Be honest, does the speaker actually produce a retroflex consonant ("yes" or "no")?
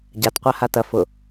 no